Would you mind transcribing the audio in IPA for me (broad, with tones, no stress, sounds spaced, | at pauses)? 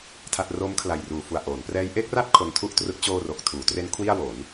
tʰ a˥˩ t̚ r o˦˥ m kʰ l a˨˩ j r uː˨˩ f u˨˩ a̯ ʔ oː˩˦ n p r ɛː˦˥ j ʔ e˦˥ k̚ r a˥˩ t̚ kʰ o˧ n tʰ u˥˩ ʔ t r ɯ˦˥ k̚ t͡ɕ oː˧ r o˨˩ k̚ tʰ uː˩˦ t r e˦˥ n kʰ w i˥˩ a̯ w o˩˦ n